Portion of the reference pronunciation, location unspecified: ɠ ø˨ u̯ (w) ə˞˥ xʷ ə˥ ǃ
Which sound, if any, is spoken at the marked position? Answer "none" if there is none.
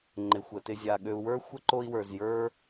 w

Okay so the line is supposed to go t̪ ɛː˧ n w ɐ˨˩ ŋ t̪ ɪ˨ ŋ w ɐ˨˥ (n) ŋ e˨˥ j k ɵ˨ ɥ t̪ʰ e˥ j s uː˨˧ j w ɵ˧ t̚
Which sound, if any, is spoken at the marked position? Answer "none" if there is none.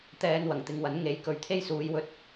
n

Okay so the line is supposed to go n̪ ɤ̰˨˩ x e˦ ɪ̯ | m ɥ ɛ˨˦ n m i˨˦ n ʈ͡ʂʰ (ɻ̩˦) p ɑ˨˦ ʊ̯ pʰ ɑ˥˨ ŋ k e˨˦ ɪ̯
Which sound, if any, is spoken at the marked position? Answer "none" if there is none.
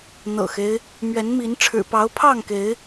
ɻ̩˨˩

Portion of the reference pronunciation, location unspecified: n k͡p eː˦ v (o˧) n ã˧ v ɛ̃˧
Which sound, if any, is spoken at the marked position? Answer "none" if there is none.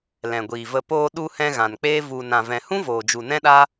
u˧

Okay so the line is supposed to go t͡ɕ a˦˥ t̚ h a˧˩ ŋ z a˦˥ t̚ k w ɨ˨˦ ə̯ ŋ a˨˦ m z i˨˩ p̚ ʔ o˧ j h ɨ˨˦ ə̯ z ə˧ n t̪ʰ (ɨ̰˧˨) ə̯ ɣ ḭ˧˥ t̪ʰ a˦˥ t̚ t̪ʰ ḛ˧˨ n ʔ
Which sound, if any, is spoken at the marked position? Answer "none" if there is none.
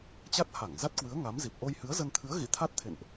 ɨ˨˦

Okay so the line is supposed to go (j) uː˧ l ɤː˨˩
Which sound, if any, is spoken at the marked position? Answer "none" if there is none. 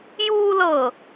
j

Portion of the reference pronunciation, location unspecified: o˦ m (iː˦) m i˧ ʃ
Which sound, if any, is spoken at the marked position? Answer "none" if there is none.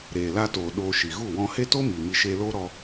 iː˨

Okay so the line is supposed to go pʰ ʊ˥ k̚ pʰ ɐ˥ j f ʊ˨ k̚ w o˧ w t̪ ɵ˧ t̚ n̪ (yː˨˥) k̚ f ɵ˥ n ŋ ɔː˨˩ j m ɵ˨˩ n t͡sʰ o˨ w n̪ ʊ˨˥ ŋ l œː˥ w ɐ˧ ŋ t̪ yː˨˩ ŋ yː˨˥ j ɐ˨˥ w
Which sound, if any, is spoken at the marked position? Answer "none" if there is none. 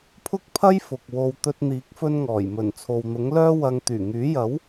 iː˨˥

